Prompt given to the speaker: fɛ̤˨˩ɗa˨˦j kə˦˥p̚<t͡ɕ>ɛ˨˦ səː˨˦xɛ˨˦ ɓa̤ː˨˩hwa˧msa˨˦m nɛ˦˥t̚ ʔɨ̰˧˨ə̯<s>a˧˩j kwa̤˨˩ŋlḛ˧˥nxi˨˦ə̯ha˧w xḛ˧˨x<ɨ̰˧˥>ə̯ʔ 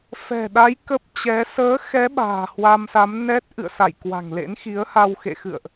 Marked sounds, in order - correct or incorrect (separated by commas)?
correct, correct, incorrect